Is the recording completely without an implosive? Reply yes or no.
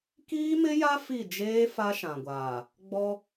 yes